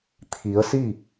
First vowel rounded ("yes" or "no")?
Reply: no